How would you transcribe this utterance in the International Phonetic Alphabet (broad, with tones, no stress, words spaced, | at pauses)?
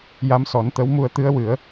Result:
ja˧˥msɔ˨˩˦nt̪ə˧˥wmu˧ə̯ t̪ɨ˧˥ə̯wɨ˨˩˦ə̯